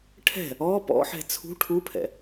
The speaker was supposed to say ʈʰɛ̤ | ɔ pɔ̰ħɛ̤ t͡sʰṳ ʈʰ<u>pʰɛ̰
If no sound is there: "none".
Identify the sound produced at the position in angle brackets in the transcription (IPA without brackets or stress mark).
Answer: u